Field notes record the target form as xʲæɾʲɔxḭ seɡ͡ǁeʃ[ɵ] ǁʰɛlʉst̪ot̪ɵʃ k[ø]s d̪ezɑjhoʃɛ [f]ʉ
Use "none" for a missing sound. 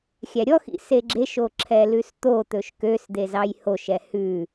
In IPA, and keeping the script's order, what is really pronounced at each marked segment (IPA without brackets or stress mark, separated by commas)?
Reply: o, ø, h